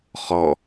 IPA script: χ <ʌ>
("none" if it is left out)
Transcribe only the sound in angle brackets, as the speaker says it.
ɔ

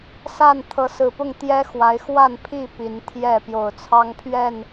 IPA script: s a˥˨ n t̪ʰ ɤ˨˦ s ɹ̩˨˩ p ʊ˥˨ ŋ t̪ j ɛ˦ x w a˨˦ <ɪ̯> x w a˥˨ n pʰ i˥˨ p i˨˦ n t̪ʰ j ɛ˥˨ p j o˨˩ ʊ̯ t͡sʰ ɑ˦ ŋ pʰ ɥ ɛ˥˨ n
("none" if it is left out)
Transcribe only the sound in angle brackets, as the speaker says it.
ɪ̯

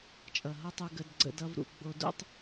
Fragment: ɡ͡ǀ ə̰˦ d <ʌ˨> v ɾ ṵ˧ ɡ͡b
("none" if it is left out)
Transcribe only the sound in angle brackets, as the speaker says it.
ʌ˦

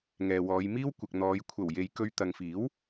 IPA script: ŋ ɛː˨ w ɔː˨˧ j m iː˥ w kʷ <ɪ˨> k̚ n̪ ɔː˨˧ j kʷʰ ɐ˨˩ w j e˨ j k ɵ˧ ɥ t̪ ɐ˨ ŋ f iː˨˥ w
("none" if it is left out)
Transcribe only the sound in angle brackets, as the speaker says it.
ɪ˨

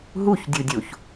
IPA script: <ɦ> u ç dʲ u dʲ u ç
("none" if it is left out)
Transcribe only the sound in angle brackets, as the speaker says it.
ɦ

